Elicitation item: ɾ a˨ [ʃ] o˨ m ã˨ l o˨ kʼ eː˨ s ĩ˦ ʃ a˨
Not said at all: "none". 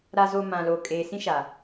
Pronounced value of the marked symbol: z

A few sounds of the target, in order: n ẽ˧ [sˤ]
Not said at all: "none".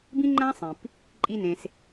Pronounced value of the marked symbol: s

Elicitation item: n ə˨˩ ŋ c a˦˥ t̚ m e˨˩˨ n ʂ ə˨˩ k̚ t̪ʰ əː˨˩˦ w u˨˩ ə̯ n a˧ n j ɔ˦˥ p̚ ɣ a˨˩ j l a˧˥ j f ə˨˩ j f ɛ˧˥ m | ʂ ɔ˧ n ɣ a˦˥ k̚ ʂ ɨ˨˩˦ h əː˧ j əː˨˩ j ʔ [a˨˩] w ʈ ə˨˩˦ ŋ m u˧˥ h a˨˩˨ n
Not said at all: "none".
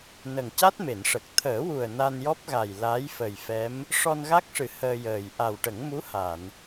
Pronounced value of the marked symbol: a˨˩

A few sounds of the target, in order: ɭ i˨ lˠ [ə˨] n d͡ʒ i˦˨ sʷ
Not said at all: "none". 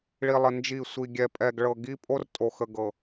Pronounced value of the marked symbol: ə˨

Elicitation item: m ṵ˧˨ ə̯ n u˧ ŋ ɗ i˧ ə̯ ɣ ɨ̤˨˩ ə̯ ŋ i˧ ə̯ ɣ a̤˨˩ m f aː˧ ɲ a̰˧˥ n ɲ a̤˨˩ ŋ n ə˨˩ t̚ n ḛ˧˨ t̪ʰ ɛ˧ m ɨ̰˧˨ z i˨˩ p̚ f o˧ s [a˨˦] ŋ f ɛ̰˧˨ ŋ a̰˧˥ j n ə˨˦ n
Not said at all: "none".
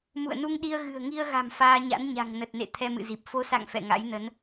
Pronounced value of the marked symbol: a̰˧˨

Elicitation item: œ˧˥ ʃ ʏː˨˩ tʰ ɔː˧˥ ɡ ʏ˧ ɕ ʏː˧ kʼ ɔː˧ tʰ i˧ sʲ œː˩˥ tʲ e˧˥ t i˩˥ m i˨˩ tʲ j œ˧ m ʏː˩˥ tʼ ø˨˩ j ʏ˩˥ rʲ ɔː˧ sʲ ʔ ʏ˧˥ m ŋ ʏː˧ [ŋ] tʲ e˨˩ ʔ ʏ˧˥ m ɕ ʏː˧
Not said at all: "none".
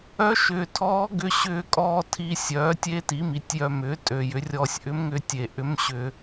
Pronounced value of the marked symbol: none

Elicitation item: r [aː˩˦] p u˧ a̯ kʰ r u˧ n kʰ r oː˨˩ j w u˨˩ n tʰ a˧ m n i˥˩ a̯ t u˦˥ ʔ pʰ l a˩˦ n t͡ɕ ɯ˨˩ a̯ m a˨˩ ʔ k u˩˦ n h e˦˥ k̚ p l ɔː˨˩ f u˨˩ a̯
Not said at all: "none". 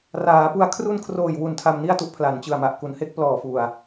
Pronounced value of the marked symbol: aː˩˦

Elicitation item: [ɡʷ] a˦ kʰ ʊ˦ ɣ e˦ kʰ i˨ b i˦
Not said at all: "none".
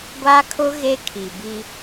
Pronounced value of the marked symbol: ɡʷ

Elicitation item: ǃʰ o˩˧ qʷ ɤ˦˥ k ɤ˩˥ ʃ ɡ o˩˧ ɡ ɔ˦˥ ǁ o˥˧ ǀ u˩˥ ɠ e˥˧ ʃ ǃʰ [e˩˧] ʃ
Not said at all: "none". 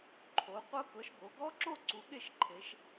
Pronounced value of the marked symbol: e˩˧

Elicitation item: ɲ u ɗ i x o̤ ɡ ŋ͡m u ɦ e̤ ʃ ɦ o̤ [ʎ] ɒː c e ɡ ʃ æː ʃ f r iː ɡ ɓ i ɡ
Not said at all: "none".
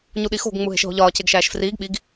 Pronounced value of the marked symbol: ʎ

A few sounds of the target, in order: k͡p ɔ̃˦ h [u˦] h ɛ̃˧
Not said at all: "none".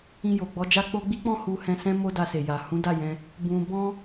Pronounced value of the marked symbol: u˧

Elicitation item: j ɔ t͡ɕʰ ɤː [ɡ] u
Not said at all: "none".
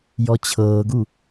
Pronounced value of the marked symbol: ɡ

